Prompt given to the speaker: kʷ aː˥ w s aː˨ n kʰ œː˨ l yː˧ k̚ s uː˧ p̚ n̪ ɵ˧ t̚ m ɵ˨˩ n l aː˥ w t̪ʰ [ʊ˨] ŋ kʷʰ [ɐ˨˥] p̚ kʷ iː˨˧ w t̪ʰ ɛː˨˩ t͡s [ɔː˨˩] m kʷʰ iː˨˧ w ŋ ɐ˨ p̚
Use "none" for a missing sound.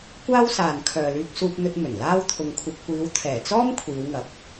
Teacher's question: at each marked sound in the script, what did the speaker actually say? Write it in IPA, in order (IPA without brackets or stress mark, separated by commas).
ʊ˧, ɐ˧, ɔː˥